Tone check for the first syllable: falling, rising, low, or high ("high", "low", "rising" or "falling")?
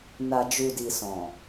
low